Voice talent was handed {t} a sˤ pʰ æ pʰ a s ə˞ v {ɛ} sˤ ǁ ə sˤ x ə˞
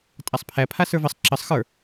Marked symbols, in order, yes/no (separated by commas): no, no